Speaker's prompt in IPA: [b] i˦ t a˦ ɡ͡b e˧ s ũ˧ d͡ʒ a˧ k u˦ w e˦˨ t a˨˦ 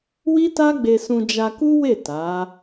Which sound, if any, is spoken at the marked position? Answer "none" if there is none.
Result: w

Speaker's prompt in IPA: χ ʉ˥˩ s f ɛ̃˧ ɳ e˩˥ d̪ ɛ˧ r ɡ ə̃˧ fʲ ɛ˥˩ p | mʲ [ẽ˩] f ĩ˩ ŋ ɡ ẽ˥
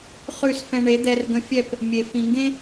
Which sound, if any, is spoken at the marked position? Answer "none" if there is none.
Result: e˩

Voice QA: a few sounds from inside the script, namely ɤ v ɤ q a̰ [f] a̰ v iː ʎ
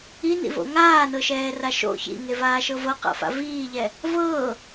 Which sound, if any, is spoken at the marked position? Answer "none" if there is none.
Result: f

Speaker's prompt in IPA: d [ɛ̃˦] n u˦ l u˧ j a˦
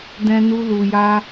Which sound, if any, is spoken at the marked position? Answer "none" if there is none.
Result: ɛ̃˦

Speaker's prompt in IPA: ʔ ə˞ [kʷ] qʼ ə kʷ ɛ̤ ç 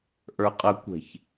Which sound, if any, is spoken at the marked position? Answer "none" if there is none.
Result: none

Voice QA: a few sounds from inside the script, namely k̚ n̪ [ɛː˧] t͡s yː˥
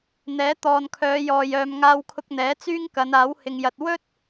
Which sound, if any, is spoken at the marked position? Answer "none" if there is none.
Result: ɛː˨˥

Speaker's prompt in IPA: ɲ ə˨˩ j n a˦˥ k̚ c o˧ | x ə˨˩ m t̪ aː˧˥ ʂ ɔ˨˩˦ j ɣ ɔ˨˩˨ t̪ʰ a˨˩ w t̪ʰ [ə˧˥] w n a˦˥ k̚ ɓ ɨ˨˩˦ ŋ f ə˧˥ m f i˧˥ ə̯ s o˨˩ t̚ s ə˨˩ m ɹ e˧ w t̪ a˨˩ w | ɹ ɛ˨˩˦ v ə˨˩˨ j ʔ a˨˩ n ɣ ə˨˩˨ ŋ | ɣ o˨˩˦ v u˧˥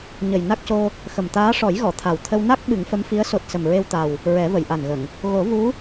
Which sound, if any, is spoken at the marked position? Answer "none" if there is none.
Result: ə˧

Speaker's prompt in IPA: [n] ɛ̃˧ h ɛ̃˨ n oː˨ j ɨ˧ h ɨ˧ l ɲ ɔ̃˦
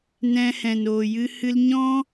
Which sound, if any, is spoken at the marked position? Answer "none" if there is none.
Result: n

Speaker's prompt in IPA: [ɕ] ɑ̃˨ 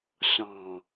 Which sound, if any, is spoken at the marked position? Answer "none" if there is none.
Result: ɕ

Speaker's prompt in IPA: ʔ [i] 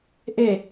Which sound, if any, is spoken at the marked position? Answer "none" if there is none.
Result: e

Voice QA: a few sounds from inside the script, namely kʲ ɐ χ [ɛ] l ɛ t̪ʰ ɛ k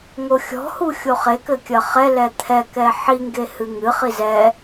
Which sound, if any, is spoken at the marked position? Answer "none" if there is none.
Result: ɛ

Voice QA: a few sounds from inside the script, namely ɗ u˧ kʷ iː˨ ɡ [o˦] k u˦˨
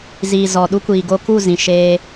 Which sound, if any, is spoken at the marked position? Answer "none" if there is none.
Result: o˧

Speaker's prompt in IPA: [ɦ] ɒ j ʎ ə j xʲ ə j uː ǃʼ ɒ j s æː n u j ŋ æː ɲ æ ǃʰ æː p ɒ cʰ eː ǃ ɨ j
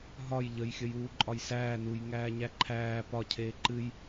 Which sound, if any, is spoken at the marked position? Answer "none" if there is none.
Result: ɦ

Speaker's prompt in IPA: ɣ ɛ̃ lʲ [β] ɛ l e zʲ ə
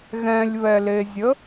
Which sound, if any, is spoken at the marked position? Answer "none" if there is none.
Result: β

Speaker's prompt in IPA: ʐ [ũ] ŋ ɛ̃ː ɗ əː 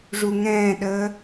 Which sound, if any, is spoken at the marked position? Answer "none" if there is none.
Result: u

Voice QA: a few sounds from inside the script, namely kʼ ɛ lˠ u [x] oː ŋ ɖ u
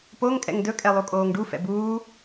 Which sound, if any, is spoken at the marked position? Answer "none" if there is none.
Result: kʼ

